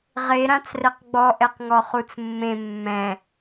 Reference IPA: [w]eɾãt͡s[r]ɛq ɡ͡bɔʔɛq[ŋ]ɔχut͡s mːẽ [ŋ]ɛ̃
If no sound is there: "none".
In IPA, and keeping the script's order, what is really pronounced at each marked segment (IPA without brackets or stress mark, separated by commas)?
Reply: ʁ, r, ŋ, mː